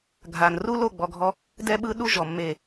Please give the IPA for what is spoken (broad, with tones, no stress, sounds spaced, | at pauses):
ɡʱ a˨ n r u˦ l o˦˨ ɡ͡b ɔ˨ ɡʱ ɔ˧ | d ɛ˦ ɓ ɯ˦ ɗ u˦ ʒ ɔ˨ mː e˨